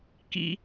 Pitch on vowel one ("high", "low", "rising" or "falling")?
low